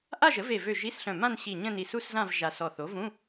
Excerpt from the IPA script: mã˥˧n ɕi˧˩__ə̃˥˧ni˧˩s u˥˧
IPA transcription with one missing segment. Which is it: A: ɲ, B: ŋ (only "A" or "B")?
A